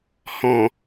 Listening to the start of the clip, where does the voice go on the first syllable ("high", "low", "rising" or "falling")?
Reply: low